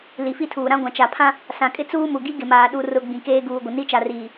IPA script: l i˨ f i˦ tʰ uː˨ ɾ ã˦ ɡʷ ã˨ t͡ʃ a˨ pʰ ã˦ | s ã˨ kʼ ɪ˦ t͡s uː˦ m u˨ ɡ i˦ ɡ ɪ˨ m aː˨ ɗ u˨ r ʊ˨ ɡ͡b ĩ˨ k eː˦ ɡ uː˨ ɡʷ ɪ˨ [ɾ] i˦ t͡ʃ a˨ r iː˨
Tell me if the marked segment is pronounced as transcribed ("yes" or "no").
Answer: no